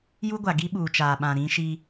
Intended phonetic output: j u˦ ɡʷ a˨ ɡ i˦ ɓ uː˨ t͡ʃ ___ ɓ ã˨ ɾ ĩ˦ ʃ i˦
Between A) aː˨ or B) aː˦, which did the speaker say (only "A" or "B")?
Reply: A